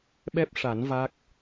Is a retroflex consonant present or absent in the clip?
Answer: present